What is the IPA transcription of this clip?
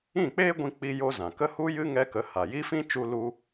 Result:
ĩ˦˨k͡peː˦ɡʷĩ˧ k͡pi˦jo˦zã˨ kə˦hu˦jɨ˦ ŋɛ˦kə˧ ha˨ji˦fĩ˦ t͡ʃu˦ lu˦

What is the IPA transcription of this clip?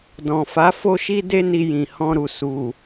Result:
dɔ̃˨fa˨˦ fo˦ʃi˦de˦ ni˧jĩ˨hɔ̃˧ɾu˨ su˨

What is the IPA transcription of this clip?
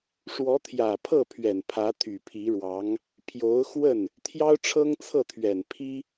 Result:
ʂwɔ˧˥t̪ʰjä˨˩pʰɤ˥˩pʰɥɛ˨˩n pʰä˧˥t̪ʰy˨˩pʰi˧˥ɻwɑ˧˥ŋ | pʰjo˧˥ʊ̯xwə˥˩n | t̪ʰjɑ˥ʊ̯ʈ͡ʂʰɤ˥ŋt͡sʰɤ˥˩t̪ʰɥɛ˨˩n pʰi˥

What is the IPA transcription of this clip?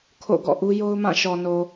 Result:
kʰo̰˦˨ɡɔ̰˦˨ʔu˦ jo˦ʊ̯mã˦˨ʃɔ˨no˨

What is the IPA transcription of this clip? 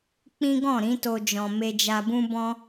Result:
k͡pĩ˦ɡɔ̃˦˨ ɾĩ˨˦to˧ d͡ʒɔ̃˨me˧d͡ʒa˧bũ˦ bɔ̃˦

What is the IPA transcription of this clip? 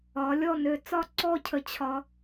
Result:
ɒ˩˧ lʲɔ˥˧nø˧˩ t͡sɒ˥˧ ǀɔ˥˧cʰə˧ t͡ɕʰɒ˧

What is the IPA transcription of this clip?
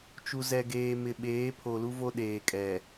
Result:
t͡ʃu˨zɛ˨ɡeː˨mɪ˨ ɓeː˨˦pʰo˨lu˦vo˦ ɗeː˨kʼɛ˨

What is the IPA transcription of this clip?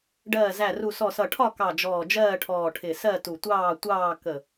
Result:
ɖɜː˧˩zæ˧˩ru˧˩sɔ˧˩ sʌ˧˩ʈʰɒ˥˨kɑ˧˩ d͡ʒɔː˧˩d͡ʒɜː˥˨ʈʰɔː˧˩ ʈʰɪ˧˩ sɜ˥˨tu˧˩tʷɑː˥˨tʷɑː˥˨ kə˧˩

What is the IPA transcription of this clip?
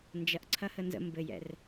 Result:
nd͡ʒɐʔǀʰɐhə nzə̰ mbɘjɛ̰r

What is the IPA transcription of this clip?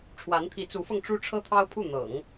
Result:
ʈ͡ʂʰwa˧˥nt̪ʰi˧˥t͡su˧˥fɤ˧ŋ ʈ͡ʂu˥ʈ͡ʂʰɤ˥t̪ʰɑ˥ʊ̯pʰu˥˩ n̪ɤ̰˨˩˦ŋ

